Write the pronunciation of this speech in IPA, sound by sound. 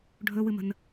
ɖʱ ɵ w ɨ m ə̤ n

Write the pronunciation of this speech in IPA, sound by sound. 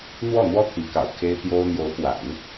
n̪ w ɔ˥˩ n̪ w ɔ˥ t̪ʰ i˧˥ k ɑ̰˨˩ ʊ̯ kʰ e˥ ɪ̯ t̪ j o˥ ʊ̯ n̪ j o˧˥ ʊ̯ p w a̰˨˩˦ n

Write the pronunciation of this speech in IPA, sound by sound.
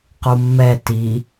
q u mː ɛ t i

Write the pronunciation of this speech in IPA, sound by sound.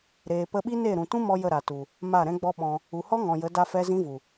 ɾ eː˨ p ə˧ ɓ i˦ n e˦˨ ɾ ũ˨ t ũ˦ m ɔ˧ j ə˦˨ ɾ a˨ t u˨ | m a˦˨ ɾ ɛ̃˦ ɡ͡b ɔ˦ ɓ ɔ̃˧ | u˨ h ɔ˦ ŋ ɔ̃˨ j ə˨˦ d a˧ f ɛ˧ z ĩ˦ v u˨

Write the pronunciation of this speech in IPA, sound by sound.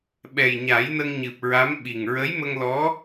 ɓ ɛ˨˩ j ɲ a˨˩˦ j n ə˧ ŋ ɲ ɨ˨˩ p̚ ɹ a˧˥ m ɓ i˨˩ ŋ ɹ ə˧˥ j m ə˧ ŋ l ɔ˧˥

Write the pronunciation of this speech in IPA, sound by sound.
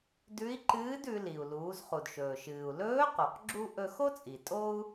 d ʉ˧˥ i̯ ǃ ɨː˧˥ d ʉ˩˧ l i˩ u̯ l uː˩˧ z χ u˩ d ʃ ɵː˩ ʃ ɨː˩ u̯ l ɵː˧˥ q o˩ q ɡ͡ǁ u˧ ʔ ɵ˧ x o˥ t͡sʼ i˩ tʼ o˥ u̯

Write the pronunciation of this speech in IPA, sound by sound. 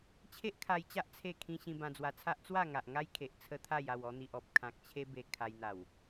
t͡ɕʰ e˦ ʔ kʰ a˧ j t͡ɕ a˦ ʔ t͡sʰ e˥˧ kʰ ĩ˦ ɕ ĩ˧ b ã˧ d͡z w a˧ t͡sʰ a˦ ʔ t͡s w a˥˧ ŋ a˨ ʔ ŋ a˦ j kʰ e˨ ʔ t͡sʰ ə˦ t̪ʰ a˥˧ j a˥˧ w ɔ˧ n̪ i˨ ʔ ɔ˨ p̚ kʰ ã˨ k̚ t͡ɕʰ e˦ b e˧ kʰ a˧ j n̪ a˨˩ w

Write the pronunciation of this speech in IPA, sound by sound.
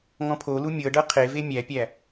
ŋ ɔ̃ pʰ o l u mʲ ɤ ɖ ɤ qʰ e v e mʲ æ pʲ æ

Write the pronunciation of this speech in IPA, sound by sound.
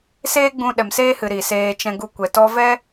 s eː˦ ɡ͡b ũ˧ ɗ ɛ˨ m s eː˧ h ɨ˨ ɾ i˨ s eː˧ t͡ʃ ɛ̃˧ ɡ u˧ kʷ ɛ˨ t ɔ˧ v ɛ˦

